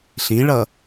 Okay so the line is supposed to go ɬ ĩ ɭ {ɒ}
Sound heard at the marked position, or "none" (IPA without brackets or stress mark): ʌ